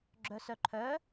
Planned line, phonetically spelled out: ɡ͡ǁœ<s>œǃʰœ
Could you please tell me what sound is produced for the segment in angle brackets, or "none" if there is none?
s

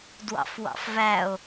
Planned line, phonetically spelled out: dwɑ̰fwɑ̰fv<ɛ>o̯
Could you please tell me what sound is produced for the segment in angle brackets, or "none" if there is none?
æ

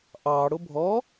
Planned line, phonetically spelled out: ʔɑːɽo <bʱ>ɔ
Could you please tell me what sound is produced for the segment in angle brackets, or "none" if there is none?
bʱ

